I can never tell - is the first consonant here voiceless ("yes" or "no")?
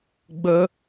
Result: no